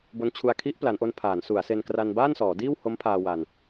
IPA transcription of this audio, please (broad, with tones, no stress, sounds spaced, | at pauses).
b o˦˥ n t͡ɕʰ u˧ a̯ kʰ i˦˥ ʔ p l a˩˦ n ʔ o˧ n pʰ aː˩˦ n s u˩˦ a̯ s e˧ n k r a˧ n b aː˥˩ n s ɔː˩˦ d iː˥˩ w h o˦˥ m pʰ aː˧ w a˧ n